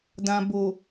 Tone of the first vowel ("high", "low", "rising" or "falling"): low